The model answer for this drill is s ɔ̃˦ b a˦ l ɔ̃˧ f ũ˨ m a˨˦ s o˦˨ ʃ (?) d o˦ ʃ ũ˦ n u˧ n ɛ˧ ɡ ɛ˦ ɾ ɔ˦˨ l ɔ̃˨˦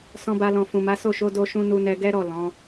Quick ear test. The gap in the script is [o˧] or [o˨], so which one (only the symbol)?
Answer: o˧